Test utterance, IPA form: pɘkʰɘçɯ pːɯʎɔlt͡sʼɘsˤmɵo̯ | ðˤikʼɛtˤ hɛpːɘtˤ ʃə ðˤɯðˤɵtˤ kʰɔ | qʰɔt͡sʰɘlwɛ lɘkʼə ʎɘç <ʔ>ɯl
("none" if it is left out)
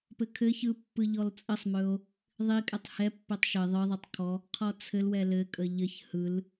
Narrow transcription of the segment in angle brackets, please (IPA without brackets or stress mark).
h